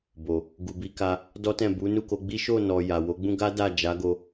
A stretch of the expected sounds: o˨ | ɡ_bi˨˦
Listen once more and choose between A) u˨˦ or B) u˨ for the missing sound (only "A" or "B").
B